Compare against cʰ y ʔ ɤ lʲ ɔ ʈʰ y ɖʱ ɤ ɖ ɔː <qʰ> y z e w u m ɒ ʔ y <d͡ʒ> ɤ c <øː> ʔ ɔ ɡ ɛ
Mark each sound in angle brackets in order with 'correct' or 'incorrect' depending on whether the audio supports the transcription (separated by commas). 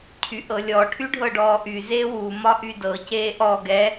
incorrect, incorrect, incorrect